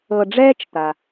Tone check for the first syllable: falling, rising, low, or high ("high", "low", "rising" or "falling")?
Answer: low